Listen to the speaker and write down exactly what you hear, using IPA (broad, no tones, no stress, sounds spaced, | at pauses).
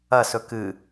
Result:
ɐ s ɵ k ɨ